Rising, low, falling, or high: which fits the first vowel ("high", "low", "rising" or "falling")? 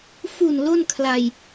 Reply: low